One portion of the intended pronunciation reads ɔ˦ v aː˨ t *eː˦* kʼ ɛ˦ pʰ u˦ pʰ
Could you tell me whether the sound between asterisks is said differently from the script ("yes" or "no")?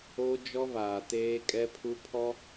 no